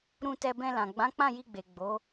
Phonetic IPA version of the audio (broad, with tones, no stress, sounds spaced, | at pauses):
ɾ ũ˧ t ɛ˧ b ɛ̃˧ l ã˨ ɡ͡b ã˨˦ k͡p ã˦˨ j i˧ ɡ͡b e˨ ɡ͡b o˨˦